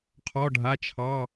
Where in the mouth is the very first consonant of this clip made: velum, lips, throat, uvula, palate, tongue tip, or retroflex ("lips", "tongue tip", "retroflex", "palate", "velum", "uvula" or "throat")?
uvula